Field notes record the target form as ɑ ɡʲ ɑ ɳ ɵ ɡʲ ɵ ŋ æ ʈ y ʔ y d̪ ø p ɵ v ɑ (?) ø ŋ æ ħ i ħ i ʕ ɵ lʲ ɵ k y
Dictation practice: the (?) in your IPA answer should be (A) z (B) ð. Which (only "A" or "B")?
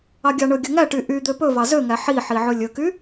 A